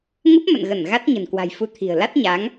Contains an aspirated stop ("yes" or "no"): yes